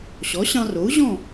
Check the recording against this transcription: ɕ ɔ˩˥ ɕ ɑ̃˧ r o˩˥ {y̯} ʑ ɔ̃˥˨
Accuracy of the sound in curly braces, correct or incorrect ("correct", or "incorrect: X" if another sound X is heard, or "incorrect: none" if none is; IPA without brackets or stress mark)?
incorrect: u̯